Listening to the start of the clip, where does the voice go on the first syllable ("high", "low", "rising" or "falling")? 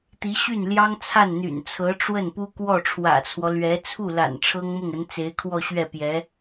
rising